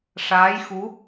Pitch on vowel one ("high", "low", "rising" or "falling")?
rising